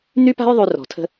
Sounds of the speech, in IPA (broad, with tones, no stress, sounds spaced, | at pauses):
n̪ y˦ p a̤˦ j ðˤ y˦ r ɔ̤˨ tʰ ə̤˦